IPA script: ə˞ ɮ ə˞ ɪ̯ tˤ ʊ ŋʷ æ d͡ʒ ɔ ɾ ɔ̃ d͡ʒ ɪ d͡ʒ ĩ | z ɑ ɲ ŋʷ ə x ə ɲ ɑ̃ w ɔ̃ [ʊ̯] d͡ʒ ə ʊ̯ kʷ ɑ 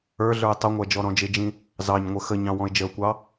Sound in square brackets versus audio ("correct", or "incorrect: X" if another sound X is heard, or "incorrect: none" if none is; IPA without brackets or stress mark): incorrect: ɪ̯